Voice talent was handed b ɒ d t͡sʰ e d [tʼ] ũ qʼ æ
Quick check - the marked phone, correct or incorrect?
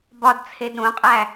incorrect